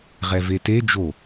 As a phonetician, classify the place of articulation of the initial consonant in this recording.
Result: uvular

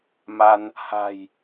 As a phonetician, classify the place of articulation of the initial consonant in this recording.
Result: labial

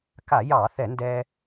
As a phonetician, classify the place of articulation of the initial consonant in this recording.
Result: velar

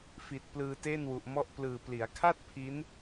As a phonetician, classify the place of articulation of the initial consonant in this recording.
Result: labial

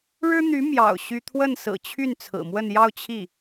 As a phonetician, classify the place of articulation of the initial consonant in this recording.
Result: retroflex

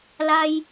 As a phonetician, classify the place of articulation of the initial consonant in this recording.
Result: alveolar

